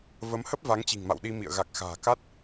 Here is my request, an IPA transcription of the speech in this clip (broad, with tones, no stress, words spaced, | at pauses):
və˨˦mhə˦˥p̚ va˨˦ŋt͡ɕi̤˨˩ŋma̰˧˨w ɗi˧mḭ˧˨ə̯ ɣa˨˩k̚xa̤ː˨˩ka˦˥t̚